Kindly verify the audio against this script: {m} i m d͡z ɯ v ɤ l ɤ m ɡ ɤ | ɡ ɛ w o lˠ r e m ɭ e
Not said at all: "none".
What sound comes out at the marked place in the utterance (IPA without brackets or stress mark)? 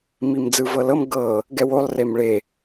m